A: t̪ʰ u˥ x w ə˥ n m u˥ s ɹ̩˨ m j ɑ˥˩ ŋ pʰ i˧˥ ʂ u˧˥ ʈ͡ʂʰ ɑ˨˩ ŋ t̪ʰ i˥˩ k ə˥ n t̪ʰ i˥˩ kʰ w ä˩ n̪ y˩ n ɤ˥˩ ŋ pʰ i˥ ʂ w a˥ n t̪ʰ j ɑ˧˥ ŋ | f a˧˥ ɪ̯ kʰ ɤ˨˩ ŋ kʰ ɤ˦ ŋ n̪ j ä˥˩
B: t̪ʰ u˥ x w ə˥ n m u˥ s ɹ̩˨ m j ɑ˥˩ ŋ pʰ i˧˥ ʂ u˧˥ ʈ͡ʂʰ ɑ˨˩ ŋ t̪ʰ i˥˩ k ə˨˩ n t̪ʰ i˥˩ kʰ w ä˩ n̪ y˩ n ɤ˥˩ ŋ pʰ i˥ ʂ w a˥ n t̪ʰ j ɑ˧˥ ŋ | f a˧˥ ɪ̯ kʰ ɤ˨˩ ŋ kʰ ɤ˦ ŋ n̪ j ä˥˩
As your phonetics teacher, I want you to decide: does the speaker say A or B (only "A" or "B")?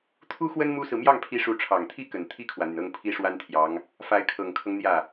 B